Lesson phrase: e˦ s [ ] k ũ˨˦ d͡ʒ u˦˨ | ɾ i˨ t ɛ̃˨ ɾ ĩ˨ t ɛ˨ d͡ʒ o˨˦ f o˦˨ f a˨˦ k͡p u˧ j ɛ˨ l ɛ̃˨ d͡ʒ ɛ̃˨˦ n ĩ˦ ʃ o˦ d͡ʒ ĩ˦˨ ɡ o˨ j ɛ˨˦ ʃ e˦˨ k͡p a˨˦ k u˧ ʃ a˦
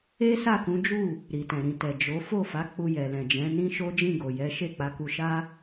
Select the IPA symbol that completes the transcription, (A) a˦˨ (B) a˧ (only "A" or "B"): A